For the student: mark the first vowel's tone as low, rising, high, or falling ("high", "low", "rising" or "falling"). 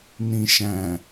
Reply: low